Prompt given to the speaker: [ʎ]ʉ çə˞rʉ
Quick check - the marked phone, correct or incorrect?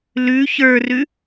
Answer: incorrect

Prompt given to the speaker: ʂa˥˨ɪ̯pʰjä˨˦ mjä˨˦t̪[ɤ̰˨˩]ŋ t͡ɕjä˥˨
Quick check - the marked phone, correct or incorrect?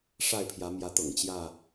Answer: correct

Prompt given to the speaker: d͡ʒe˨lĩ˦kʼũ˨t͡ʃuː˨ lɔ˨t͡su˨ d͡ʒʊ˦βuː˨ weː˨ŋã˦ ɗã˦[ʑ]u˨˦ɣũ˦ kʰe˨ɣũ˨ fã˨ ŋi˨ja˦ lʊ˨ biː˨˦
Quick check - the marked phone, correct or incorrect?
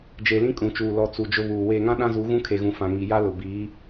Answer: incorrect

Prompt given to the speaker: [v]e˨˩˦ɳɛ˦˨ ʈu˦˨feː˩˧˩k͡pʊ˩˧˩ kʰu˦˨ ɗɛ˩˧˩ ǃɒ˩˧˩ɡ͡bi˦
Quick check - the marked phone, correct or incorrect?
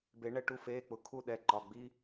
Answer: incorrect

